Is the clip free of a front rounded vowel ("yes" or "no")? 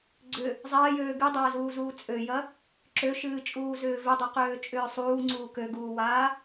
no